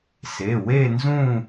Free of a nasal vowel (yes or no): no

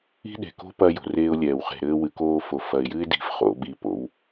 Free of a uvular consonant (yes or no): no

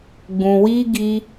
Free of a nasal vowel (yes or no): no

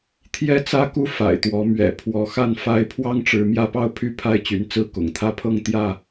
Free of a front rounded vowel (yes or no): no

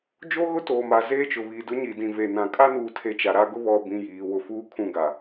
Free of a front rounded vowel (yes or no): yes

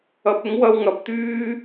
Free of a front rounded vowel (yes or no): no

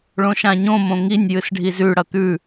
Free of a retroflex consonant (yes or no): no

